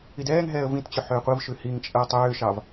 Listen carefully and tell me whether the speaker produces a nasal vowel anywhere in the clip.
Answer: yes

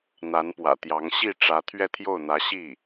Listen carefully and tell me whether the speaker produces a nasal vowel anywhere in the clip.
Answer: no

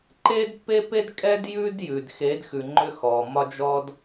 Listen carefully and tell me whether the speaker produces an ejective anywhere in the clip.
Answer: yes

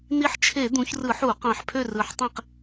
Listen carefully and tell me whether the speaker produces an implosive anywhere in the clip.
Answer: no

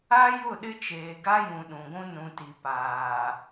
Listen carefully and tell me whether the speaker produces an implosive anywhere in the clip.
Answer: yes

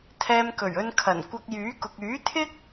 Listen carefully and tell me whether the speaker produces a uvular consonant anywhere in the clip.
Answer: no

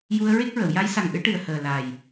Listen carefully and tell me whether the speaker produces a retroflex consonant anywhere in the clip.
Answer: yes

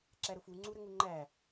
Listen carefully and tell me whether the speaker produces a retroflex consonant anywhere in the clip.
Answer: no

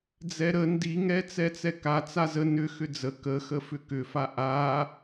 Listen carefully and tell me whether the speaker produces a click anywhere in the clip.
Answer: no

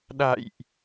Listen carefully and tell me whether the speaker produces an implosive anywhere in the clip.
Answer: yes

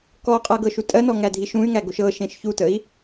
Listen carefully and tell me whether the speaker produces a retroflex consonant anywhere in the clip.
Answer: no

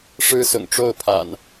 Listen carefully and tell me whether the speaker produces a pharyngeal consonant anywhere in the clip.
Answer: no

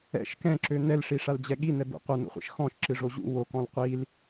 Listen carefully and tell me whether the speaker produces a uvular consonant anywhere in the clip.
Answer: yes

